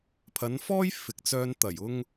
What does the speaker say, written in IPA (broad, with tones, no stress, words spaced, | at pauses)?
pʰɐ˨˧nfɔː˥j fɪ˨k̚t͡sœː˧n t̪ɐ˨˩jʊ˧ŋ